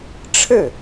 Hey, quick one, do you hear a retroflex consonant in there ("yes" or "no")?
yes